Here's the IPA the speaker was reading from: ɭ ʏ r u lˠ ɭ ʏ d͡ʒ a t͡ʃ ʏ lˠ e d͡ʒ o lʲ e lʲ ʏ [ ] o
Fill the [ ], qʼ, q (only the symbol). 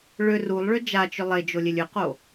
q